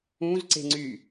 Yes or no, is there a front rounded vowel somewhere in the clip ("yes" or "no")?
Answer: yes